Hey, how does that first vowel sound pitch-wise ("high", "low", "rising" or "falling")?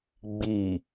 low